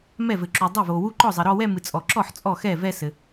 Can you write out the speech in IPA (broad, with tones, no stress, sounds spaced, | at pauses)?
m ɛ˥˩ v ɘ˨ ǁ u˨ dˤ ɛ˥˩ v o˨ w u˥˧ ǃ ɔ˥˩ zˤ ɘ˨ ɾ ɔ˥˧ w ɛ˥˧ m ɨ˨ t͡sʼ ɔ˨ ǁ ɔ˥˩ ħ t͡sʼ ɔ˥˩ x ɛ˥˩ v ɛ˥˧ s ɘ˨